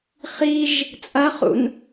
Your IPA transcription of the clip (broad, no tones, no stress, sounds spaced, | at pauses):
χ i ʒ | t͡sʼ ɐ χ ṵ n